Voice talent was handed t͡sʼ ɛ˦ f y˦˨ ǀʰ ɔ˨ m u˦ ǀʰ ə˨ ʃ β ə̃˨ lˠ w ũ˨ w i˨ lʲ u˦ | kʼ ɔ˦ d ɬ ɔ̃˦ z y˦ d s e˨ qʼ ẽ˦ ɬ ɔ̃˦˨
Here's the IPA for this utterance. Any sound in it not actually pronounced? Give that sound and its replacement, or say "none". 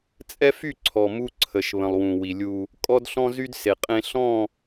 none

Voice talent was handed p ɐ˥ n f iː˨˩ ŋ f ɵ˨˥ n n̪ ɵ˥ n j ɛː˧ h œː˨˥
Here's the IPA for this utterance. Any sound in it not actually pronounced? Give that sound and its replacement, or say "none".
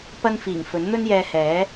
œː˨˥ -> ɛː˨˥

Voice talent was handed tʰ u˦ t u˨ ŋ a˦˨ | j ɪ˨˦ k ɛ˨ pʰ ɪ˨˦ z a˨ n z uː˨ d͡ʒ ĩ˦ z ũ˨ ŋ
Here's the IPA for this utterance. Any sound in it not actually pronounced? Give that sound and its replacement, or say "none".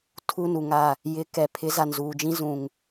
t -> n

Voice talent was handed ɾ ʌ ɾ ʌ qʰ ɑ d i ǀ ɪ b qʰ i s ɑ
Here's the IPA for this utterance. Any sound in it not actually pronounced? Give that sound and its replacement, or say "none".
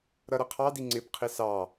ǀ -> ŋ͡ǀ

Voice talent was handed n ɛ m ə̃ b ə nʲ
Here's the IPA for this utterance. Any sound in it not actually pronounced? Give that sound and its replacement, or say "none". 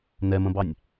ə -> ɑ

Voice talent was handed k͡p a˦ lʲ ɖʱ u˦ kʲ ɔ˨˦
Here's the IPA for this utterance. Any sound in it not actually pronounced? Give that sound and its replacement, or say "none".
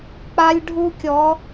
none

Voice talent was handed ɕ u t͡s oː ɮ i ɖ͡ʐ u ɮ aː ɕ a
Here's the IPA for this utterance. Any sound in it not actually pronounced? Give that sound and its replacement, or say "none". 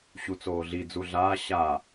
ɖ͡ʐ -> d͡z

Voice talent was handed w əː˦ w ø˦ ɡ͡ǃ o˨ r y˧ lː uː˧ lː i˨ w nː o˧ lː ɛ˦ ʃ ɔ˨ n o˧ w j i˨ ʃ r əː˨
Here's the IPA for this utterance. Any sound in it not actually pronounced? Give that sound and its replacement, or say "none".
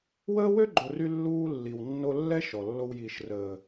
n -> lː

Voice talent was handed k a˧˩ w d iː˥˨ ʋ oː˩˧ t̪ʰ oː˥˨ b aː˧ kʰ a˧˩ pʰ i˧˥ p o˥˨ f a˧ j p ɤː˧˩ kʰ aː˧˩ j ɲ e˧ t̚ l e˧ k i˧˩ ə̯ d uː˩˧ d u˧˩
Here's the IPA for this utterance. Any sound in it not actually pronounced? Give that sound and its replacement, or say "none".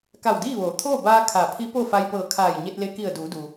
u˧˩ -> u˩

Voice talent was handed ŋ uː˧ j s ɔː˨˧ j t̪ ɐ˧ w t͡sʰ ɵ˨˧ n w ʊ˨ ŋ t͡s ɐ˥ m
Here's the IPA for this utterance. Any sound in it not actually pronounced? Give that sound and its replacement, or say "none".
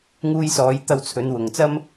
none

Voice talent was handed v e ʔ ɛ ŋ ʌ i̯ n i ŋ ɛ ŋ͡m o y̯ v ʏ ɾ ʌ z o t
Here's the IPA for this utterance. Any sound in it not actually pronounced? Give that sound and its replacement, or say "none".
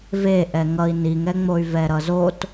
ʏ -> ɛ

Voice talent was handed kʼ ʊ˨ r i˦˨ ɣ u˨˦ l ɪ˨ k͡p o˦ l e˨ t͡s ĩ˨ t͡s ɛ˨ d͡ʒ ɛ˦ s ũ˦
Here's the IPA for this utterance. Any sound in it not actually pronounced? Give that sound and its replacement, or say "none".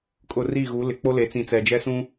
none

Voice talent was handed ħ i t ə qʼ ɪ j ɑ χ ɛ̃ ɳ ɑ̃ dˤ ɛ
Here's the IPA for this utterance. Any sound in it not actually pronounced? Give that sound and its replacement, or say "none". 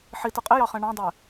none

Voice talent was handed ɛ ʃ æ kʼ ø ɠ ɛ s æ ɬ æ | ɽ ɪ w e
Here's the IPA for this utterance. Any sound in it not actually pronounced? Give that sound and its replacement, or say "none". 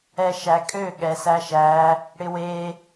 ɬ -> ʃ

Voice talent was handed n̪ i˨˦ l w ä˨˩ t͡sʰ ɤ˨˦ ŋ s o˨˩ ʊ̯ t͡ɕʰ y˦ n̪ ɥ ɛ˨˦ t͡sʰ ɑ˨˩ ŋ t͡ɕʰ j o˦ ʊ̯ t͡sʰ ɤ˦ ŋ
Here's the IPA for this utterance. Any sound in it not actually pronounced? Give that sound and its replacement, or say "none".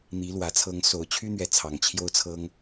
none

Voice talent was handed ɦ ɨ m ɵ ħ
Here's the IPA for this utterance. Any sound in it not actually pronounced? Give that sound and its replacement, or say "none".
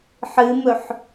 ɦ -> ħ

